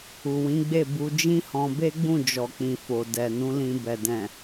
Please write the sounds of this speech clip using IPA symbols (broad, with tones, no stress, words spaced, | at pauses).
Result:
u˨wĩ˨˦ɡ͡be˦˨ bu˧ d͡ʒĩ˦hɔ̃˧ be˦ɡ͡bũ˦˨d͡ʒɔ˨k͡pĩ˨ fo˨dɛ˨nũ˨˦lĩ˧ bɛ˨dɛ̃˨